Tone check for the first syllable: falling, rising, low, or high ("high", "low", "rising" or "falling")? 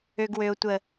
low